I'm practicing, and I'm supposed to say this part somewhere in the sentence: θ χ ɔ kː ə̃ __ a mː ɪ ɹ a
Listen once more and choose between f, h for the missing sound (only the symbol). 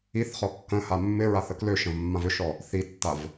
h